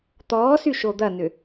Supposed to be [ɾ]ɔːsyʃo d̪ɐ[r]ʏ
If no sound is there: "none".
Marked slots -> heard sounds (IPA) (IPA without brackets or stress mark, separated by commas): t̪, n